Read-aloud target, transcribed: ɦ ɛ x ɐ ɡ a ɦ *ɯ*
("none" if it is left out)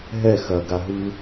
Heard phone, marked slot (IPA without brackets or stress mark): ɯ